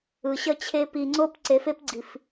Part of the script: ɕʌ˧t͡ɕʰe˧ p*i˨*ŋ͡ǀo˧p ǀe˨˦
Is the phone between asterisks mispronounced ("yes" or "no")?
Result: no